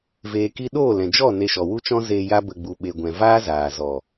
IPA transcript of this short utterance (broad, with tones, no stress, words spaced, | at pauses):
veː˨ki˧ ɗoː˦˨lɛ̃˨d͡ʒɔ˦˨ ne˧ʃɔ˨wu˦t͡ʃɔ̃˦ zeː˧ ja˦bə˧ ɡ͡bu˨ɓe˨ ɡʷɛ̃˨ vaː˦zaː˨zɔ˨